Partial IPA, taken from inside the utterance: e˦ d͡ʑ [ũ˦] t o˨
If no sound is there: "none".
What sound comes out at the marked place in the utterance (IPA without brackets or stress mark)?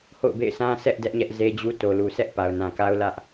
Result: u˦